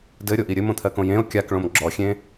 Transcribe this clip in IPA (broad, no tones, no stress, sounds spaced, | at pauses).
d ɘ ɾʲ o ʔ i ɾʲ ɘ m õ t̪ʰ ɜ k õ j ẽ o̯ kʲ a k ɭ õ m ɡ͡ǁ ɔ xʲ ẽ